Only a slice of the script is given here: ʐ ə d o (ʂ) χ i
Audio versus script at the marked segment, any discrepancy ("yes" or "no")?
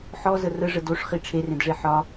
no